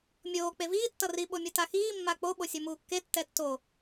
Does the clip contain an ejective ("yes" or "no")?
no